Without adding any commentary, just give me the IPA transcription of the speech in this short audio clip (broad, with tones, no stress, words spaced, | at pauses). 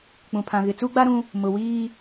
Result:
k͡pũ˨pʰã˨ ɣɪ˨t͡su˦ɡ͡ba˦ɾũ˦ | mʊ˨wiː˦